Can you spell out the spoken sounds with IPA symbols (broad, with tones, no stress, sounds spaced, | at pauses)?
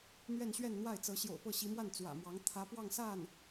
n̪ ɥ ɛ˥˧ n ɕ ɥ ɛ˥˧ n n̪ w a˥˩ ɪ̯ t͡s ɤ˧˥ ɕ j o̰˨˩ ʊ̯ p ɤ˥˩ ɕ i˧˥ m w a˥˩ n t͡s w ä̰˨˩ m w ɑ˧˥ ŋ t̪ʰ ä˧˥ p w ɑ˥˧ ŋ s a˥˩ n